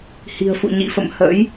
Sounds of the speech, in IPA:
h i̤˨˩ ə̯ f ṵ˧˨ ɲ ḭ˧˨ f ə̰˧˨ m h ə̰˧˥ j

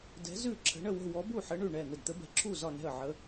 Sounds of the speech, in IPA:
d ɛ̤˨˥ z ʉ˥˩ ǁʰ ə̤˨˥ ɳ ə˥˩ w ə̤˥˩ w ɔ˨˥ b u˥˩ ħ ə˨˥ ɳ ʉ˥˩ ɳ ɛ˥˩ n̪ ə˥˩ d t̪ ə˨˥ b ɛ̤˨˥ ǁʰ u˥˩ z ɒ˥˩ n ɛ̤˥˩ ə̯ ʕ ə˨˥

